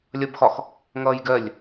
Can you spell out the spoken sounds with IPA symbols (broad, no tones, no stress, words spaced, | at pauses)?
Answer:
lʲʌbxɒx | ŋʌːjɡɜlʲ